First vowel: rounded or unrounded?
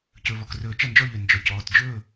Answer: rounded